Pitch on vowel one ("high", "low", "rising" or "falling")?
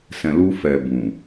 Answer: low